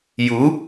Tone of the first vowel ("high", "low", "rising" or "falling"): rising